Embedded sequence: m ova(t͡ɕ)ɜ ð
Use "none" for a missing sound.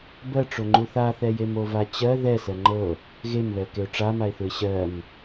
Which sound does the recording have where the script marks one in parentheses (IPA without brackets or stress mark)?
t͡ɕ